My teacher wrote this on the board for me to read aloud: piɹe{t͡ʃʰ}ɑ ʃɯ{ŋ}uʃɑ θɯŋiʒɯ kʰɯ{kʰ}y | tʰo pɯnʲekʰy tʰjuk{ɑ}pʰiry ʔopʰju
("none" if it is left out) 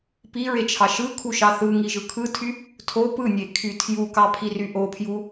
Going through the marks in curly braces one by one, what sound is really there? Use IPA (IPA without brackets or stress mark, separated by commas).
t͡ʃʰ, kʰ, tʰ, ɑ